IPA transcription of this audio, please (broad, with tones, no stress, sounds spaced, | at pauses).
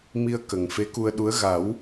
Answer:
m i˧ ə̯ k ə˨˩ ŋ f e˧˥ k u˧ ə̯ ɗ u˧˥ ə̯ ɣ a˨˩˦ w